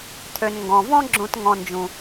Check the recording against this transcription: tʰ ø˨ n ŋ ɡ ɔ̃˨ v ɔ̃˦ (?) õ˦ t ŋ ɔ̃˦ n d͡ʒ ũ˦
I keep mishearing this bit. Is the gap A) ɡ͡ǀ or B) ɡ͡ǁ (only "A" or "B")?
B